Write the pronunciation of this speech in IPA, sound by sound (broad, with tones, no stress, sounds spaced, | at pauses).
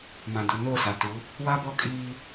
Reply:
m ã˨ d u˨ n o˦˨ s a˨ t u˨˦ | w a˦ b ɔ˦ kʼ iː˦